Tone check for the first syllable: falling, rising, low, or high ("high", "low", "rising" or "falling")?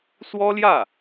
high